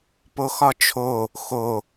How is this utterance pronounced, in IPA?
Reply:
p o x ɒ t͡ʃʰ o | x o

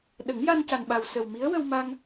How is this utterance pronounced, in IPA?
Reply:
ɗ ə˨˩˦ ŋ j a˧ n c a˨˩ n ɓ a˨˩ w s ə˨˩ w m i˧˥ ə̯ w ə˧ w m a˧ ŋ

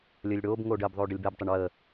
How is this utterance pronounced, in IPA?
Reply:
lʲ əː lʲ ɽ oː b ŋ oː ɖ əː b ðˤ oː ɖ ə lʲ b ɛ b tˤ ɪ ɳ w əː

